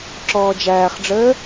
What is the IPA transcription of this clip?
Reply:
ǁ ɔː d͡ʒ æː χ ɖ͡ʐ əː

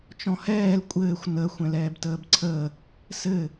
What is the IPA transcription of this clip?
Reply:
t͡ʃ ɔ̃ h ɛː l kʷʼ ɘː xʷ n ə xʷ ɛ̃ l ɛː b t əː b ǀʰ əː | s ɘ

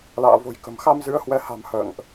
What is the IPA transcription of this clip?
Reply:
l a̰ː˧˨ v o̤˨˩ j k ə̤˨˩ m x a˧ m z ɨ˨˦ ə̯ h w ɛ˨˦ h a̤˨˩ m h ə̰ː˧˨ ŋ ʔ

